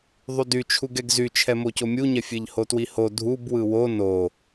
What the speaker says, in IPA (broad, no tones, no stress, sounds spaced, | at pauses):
ðˤ y d y t͡ʃʰ u ɡ ɛ ɡ z y t͡ʃʰ ɛ m o c o mʲ u ɲ ɛ fʲ e ʎ h o t w i h o dʱ u b w ɯ w o n o